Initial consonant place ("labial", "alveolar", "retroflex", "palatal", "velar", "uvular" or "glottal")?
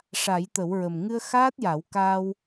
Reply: retroflex